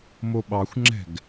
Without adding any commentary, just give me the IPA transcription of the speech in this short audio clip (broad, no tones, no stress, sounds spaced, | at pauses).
m o ɓ ɑ xʷ ŋ͡ǁ ɛ̤ ɡ